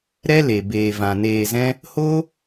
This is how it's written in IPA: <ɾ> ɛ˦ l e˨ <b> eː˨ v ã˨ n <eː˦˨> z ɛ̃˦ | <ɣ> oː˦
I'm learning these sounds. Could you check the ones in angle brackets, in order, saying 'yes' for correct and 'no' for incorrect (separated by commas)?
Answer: yes, yes, no, no